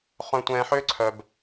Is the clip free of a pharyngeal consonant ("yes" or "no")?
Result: no